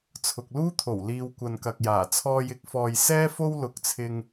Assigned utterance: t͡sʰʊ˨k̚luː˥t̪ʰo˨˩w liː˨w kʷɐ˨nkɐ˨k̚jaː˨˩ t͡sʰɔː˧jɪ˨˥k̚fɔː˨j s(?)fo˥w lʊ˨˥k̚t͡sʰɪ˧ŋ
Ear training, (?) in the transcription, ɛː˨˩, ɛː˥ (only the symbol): ɛː˥